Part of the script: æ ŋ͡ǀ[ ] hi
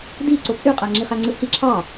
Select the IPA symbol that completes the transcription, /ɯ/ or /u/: ɯ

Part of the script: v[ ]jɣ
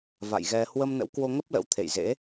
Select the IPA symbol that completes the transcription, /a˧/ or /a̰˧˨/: a̰˧˨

